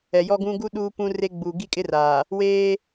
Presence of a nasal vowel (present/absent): present